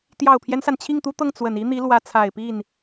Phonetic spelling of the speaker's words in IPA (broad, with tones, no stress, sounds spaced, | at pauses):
t̪ j ɑ˨˩ ʊ̯ pʰ j ɛ˦ n s a˩ n t͡ɕʰ i˥˩ ŋ t̪ u˥ t̪ ɤ˥˩ ŋ t͡s w ə˨˩ n i˥ n̪ i˧˥ l w ä˧˥ t͡sʰ a˨˩ ɪ̯ p i˥˩ n